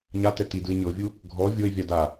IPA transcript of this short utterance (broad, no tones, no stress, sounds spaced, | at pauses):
ɲ a t ɛ t i d ɯ ɪ̯ ɲ ɤ vʲ u | ɡʱ ɔ vʲ o ɪ̯ vʲ a d a